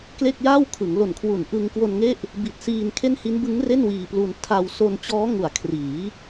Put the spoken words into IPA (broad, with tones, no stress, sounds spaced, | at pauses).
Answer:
k l e˥˩ k̚ j aː˥˩ w kʰ ɯ˩˦ ŋ l o˨˩ n kʰ w u˨˩ n ʔ ɯ˧ ŋ k w o˧ n ŋ e˥˩ ʔ | b i˨˩ t̚ s iː˧ n kʰ e˥˩ n h i˦˥ n b ɯ˦˥ ŋ r e˥˩ n w iː˧ p l u˧ n tʰ a˧ w s o˧ n t͡ɕ ɔː˦˥ ŋ u˩˦ a̯ kʰ r iː˩˦